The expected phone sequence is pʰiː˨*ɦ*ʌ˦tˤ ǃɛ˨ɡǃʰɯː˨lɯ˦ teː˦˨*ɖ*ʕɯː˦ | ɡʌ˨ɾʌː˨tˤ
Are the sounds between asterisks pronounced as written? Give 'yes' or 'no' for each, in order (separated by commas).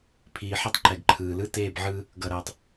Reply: no, no